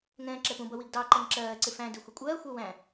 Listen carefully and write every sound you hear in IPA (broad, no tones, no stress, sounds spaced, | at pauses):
ŋ ɛ̃ː ǁ ɛ p ũ b ʌ w i ɡ d ɑ ǃ ɛ ŋ ǁ ɜː ǀ ɪ f æ̃ d ɪ xʷ ɪ kʷʼ ɜː xʷ ɜ w æ̃